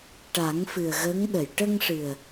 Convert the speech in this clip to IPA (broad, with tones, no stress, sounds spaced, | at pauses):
ʈ a˨˩˦ ŋ f ɨ˨˩ ə̯ ɣ ə˧˥ ŋ ɗ ə˨˩˨ j ʈ ə˧ ŋ ʂ ɨ˨˩ ə̯